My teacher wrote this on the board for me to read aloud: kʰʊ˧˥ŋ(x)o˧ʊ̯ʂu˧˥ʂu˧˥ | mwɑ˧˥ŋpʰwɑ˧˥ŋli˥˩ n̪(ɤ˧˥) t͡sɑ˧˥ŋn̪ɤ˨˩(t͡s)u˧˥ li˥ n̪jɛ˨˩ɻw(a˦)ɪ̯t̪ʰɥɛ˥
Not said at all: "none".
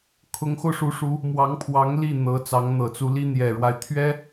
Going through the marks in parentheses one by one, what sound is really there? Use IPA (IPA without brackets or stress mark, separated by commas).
x, ɤ˧˥, t͡s, a˦